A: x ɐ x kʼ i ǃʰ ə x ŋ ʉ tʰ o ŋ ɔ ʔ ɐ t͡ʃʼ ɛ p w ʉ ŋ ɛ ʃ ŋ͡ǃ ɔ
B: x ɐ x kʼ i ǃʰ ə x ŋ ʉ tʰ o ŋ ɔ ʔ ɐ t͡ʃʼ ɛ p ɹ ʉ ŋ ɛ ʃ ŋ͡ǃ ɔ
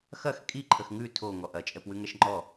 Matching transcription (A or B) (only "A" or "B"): A